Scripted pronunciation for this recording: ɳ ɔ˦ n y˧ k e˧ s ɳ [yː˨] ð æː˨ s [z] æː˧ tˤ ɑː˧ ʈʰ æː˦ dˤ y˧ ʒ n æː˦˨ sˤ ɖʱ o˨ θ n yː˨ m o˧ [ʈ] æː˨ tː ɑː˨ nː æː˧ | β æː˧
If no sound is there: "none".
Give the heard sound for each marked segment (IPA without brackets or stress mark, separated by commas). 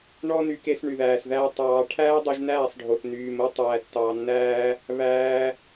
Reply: y˨, ð, tˤ